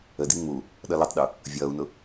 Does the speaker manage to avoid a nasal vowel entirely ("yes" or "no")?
yes